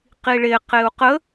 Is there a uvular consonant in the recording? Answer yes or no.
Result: yes